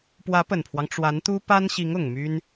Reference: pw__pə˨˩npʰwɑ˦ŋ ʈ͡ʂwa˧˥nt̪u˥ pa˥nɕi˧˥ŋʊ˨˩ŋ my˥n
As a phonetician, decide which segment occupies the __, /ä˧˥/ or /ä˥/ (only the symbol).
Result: ä˧˥